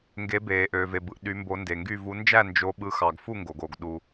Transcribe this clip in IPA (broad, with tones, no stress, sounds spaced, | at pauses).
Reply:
ŋ ɡ e˨˦ b eː˩ ʔ øː˩ v e˩ b ɯ˩ ʔ ɗ y˨˦ m b o˨˦ n d e˩ ŋ ɡ y˥˨ v u˨˦ n d͡ʒ æ˥˨ n d͡ʒ o˨˦ ɓ ɯ˨˦ x ɑ˩ ɡ f u˥˨ ŋ ɡ o˩ ɡ o˩ ɡ ɗ u˩